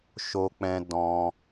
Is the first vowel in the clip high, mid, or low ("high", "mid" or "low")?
mid